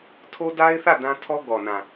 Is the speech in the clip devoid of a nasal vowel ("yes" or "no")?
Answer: no